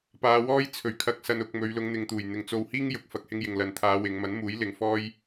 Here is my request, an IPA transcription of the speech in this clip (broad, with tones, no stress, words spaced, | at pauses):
paː˨˧wɔː˥j t͡sʰɵ˨˩ɥ kʰɐ˨k̚sɐ˨nʊ˨k̚ mɵ˨˧ɥ lʊ˨˧ŋn̪ɪ˨ŋt̪uː˨˩jn̪ɪ˨ŋ t͡so˧whiː˥ŋ jʊ˨˥k̚fɐ˧k̚hɪ˥ŋ jɪ˨ŋlɐ˨n t̪ʰaː˨˧ wɪ˨˧ŋ mɐ˨˥nmuː˨˥j lɪ˨ŋfɔː˥j